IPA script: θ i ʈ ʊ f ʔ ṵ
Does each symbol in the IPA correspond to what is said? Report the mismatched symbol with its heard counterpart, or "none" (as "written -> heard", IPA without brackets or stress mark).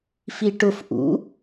θ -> f